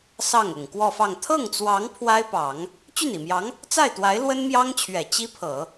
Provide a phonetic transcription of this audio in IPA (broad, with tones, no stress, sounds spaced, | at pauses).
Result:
s ɑ˥˩ ŋ ʊ˨˩ ŋ k w ɔ˥˧ f ɑ˥˧ ŋ t̪ʰ ɤ˥˩ ŋ t͡s w ɑ˧˥ ŋ pʰ w a˥ ɪ̯ p ɑ˨˩˦ ŋ | t͡ɕ y˥˩ n i˨˩ m j ɑ˧˥ ŋ | t͡s a˥˩ ɪ̯ t̪ w a˧˥ ɪ̯ l w ə˥ n m j ɑ˥ ŋ t͡ɕʰ ɥ ɛ˨˩ t͡ɕ i˥ pʰ ɤ˨˩˦